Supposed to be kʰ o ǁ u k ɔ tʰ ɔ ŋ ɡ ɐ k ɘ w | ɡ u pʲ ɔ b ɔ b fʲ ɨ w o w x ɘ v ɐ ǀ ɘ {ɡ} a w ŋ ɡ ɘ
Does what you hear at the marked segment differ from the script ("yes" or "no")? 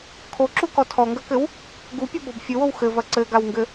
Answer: no